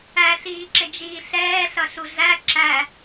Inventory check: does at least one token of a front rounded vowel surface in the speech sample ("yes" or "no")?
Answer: no